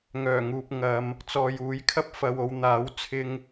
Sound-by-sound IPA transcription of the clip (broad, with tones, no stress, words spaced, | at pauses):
ŋœː˨˩ŋuː˨p̚ ŋɐ˨˧m | t͡sɔː˨juː˨˥jkʰɐ˥p̚ fɐ˧wo˧w n̪aː˨˥w t͡sʰɪ˥ŋ